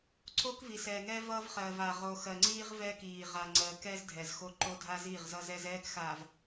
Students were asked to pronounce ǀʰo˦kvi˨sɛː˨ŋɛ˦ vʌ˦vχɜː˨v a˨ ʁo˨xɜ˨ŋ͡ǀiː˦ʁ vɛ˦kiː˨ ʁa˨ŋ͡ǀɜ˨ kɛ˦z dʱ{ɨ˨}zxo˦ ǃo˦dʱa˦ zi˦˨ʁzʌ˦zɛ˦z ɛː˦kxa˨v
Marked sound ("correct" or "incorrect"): incorrect